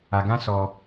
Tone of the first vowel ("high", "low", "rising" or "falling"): low